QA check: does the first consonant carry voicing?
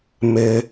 yes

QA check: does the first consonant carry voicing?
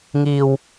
yes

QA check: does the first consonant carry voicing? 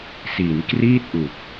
no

